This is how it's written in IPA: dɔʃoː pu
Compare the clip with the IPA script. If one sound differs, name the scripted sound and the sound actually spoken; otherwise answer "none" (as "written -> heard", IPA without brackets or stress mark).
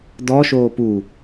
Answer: none